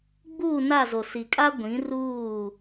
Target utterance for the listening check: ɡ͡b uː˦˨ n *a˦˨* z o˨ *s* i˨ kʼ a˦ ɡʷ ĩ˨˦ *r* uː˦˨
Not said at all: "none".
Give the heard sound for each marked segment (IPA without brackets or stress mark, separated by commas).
a˦˨, s, r